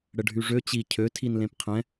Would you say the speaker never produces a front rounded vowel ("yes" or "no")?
no